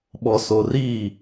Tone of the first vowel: low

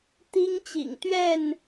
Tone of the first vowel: high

